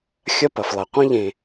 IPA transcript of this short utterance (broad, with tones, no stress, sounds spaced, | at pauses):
xʲ ɐ˦ p ɐ˩ f lˠ ɐ˩ qʷ ĩ˥ ʎ ẽ˨